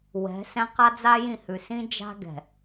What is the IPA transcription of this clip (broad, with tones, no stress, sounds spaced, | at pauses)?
w ɛ̤˨˦ s ɛ̃˦ q a˦ d͡z a˦ j ĩ˦˨ h ʉ˨ s ĩ˦ d͡ʒ a̤˦ ɡ ɛ̤˨